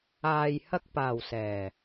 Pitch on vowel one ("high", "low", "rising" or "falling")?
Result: low